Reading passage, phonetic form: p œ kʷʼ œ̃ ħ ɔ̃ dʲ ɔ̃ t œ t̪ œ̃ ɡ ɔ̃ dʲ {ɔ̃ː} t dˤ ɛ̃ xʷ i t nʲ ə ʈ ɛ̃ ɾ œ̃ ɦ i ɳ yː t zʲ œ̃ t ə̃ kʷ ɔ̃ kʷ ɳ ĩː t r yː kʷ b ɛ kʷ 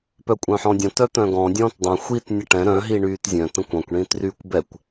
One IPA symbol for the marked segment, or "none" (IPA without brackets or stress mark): ɔ̃ː